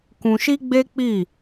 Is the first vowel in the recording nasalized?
yes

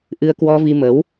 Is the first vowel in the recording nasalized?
no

